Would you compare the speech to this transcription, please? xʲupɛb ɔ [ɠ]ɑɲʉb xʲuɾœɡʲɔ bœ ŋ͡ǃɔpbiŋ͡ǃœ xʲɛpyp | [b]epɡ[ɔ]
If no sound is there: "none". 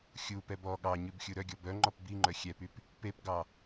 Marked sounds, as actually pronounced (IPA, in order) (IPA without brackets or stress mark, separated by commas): ɠ, p, ɑ